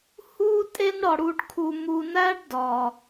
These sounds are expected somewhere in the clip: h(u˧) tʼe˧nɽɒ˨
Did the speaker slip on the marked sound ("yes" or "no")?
yes